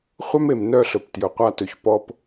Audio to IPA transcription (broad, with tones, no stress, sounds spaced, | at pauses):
χʷ œ˦ m e˨ m n œ˦˨ ɬ ɵ˨ p t j ɵ˨ qʷ a˦ t ɵ˨ ç p ɔ˨ p